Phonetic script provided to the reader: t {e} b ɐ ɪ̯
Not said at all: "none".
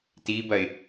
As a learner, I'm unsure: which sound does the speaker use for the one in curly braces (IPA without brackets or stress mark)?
i